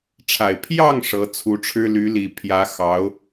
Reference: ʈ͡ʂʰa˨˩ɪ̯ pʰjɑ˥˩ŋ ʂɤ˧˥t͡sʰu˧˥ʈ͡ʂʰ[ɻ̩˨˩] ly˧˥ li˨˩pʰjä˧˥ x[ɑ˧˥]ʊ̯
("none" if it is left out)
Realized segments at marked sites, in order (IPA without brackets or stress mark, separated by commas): ɻ̩˥, ɑ˧˥